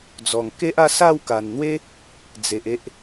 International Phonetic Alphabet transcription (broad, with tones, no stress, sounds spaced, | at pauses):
d͡z ɔ˨˩ ŋ k e˦ ʔ a˥˧ s a˥˧ w k a˨˩ n n̪ w e˦ | d͡z e˨ ʔ e˦ ʔ